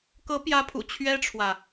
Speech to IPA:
k ɤ˧˥ p j ä˧˥ pʰ ṵ˨˩ t͡ɕʰ ɥ ɛ˥ ʈ͡ʂʰ w ä˨

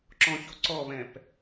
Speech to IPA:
ǁ ɔ̃ ç o ǀ ɔ β ɛ̃ p

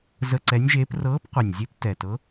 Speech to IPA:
z ə˧˥˧ ǀ ɛ˧˥ nʲ ʒ eː˧˥ p r ɤː˧˥ p qʷ e˨˩ nʲ zʲ e˧˥ p t ɛ˨˩ t ɤ˧˥

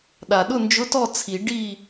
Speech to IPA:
ɗ a˨˩ ɗ ʊ˥˨ n d͡ʒ ʊ˧˥˧ t ɔ˥˨ t͡sʰ i˨˩˦ ɖ i˥˨

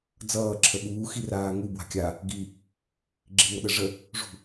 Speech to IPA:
d͡z ʌː ǁʰ ə ɓ uː x i r aː ŋ u b w a̤ kʲ a | ɡ i | ɡ͡ǁ i ŋ ʌ ɗ ə ʐ ə | ʐ ṳ

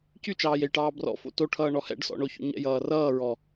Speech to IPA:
c y t͡ʃ ɑː j e j ʈ ɑː b r ɔ̰ f o̰ t o ʈʰ ʌː ɳ ɔ h ɛ̰ ɖ s ɔ̰ ɳ o ç o̰ ɲ ɛ̰ j ʌː r ʌː ɹ ɔ

